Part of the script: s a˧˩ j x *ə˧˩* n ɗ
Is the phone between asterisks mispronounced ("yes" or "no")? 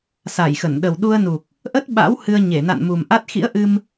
no